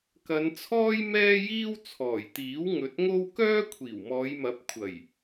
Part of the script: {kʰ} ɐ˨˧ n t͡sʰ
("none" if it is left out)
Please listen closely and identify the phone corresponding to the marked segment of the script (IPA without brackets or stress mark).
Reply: k